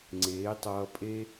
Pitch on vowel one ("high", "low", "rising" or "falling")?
rising